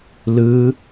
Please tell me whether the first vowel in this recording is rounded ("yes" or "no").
no